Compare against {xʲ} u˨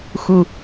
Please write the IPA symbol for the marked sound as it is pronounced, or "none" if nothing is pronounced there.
x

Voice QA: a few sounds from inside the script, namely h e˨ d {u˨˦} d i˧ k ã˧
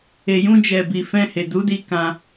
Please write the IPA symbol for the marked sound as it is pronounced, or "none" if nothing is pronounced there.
u˨˦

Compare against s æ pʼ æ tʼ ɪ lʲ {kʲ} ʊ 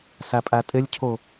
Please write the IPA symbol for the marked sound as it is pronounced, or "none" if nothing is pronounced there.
cʰ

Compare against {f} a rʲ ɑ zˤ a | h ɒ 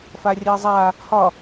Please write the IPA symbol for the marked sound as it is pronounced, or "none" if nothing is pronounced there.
f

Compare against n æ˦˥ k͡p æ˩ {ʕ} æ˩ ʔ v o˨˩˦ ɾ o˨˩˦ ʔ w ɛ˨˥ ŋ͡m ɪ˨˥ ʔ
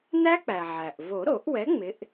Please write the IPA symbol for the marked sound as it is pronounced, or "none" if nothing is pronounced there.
ʕ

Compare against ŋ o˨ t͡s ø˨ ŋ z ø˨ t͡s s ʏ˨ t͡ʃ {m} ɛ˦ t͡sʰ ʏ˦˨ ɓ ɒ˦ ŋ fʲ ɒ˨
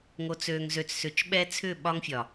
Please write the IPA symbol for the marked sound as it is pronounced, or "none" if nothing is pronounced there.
ɓ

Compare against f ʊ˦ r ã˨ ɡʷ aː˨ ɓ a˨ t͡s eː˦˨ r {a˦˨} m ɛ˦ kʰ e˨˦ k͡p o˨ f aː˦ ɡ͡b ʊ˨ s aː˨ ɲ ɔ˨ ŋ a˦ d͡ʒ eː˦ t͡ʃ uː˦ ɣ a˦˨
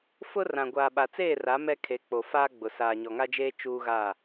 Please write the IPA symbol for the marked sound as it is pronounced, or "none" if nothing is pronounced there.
a˨˦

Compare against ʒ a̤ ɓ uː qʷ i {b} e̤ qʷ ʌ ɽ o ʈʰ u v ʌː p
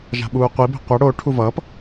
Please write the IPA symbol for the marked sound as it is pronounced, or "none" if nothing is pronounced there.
b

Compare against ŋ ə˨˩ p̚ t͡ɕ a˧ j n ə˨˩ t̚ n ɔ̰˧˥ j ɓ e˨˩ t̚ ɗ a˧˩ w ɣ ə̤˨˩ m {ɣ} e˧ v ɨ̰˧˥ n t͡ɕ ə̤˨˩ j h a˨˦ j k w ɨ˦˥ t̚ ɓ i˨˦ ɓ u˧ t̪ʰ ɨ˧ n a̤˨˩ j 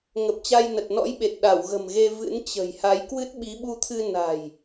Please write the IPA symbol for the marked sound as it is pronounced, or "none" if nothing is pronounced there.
ɣ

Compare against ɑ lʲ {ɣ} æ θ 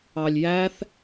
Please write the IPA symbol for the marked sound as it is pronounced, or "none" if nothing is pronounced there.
j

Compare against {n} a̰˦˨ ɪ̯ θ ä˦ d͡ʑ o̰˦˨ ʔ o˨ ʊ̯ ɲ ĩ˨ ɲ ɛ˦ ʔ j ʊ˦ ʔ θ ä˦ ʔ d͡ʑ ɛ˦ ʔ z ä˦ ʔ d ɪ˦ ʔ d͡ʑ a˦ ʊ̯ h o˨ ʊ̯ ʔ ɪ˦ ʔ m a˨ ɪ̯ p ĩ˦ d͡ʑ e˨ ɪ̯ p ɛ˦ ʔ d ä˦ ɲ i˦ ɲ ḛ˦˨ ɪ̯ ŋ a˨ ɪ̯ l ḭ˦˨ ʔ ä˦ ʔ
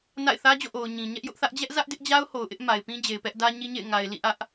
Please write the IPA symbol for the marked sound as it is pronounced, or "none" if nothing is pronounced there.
n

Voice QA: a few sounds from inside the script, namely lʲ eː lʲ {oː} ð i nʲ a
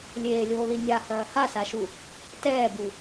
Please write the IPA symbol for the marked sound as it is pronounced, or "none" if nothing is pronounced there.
oː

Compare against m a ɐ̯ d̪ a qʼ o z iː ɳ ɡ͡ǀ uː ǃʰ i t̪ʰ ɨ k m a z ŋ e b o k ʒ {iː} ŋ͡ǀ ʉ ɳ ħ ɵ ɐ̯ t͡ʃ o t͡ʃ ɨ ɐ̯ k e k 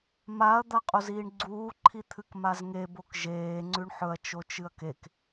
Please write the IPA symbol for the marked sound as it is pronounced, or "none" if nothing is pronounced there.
eː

